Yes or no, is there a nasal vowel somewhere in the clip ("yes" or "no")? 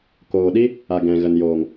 yes